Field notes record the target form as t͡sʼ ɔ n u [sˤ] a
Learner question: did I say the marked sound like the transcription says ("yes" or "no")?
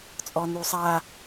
yes